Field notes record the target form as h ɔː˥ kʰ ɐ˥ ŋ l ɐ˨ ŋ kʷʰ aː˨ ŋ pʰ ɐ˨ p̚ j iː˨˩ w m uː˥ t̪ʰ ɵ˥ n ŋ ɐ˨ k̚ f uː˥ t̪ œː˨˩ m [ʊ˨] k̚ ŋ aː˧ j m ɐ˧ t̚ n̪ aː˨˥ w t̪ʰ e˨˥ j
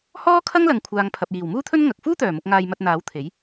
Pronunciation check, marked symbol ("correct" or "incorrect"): correct